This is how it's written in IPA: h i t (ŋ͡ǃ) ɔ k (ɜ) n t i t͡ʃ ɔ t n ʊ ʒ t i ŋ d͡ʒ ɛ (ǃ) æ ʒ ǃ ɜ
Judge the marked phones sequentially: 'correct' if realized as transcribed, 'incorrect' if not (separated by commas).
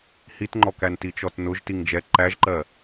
correct, incorrect, correct